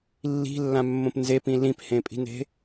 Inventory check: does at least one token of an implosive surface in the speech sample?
no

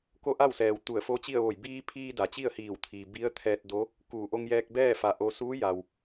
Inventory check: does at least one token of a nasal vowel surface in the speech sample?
no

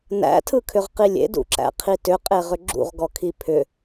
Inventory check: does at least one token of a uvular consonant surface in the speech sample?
yes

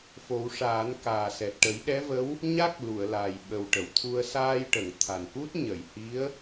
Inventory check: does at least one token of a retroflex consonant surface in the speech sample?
yes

